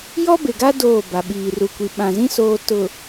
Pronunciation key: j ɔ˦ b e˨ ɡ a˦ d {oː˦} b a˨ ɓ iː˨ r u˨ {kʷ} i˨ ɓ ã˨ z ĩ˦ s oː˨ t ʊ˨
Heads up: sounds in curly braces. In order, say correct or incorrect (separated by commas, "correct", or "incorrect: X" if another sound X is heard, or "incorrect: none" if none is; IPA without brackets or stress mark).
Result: incorrect: oː˦˨, correct